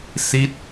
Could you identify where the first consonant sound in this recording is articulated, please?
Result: alveolar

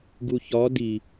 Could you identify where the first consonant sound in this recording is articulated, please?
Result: velar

